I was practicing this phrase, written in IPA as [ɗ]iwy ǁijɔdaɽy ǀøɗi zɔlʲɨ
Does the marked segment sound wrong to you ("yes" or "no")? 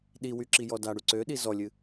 no